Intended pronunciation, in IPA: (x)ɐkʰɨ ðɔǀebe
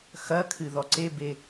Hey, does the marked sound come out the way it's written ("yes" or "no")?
yes